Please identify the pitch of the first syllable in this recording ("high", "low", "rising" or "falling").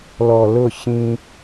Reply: low